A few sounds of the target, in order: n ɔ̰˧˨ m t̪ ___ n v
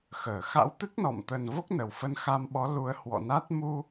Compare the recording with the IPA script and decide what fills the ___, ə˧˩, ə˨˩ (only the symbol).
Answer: ə˨˩